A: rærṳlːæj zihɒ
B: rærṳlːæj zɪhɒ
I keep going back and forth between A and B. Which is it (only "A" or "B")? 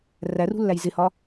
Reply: B